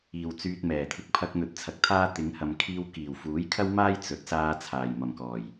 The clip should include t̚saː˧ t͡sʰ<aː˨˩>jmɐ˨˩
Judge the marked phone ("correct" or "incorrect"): correct